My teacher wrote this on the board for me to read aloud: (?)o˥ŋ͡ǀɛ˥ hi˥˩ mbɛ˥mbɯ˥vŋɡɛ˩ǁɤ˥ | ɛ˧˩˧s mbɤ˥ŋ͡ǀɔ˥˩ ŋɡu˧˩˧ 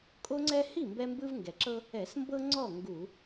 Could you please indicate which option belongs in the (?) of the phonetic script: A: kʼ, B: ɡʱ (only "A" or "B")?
A